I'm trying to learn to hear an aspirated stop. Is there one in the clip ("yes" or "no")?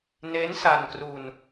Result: no